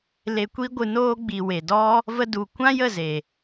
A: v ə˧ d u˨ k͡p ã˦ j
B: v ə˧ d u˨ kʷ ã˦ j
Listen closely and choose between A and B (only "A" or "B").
B